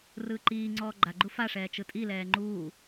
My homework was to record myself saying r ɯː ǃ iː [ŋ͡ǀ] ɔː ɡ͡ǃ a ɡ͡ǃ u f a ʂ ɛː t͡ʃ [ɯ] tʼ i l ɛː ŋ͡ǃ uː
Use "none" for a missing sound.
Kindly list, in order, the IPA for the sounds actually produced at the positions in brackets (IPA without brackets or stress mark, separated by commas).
ŋ͡ǀ, ɯ